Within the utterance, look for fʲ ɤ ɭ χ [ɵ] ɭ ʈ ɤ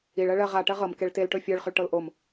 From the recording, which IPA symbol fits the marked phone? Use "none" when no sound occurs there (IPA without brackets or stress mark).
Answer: ɵ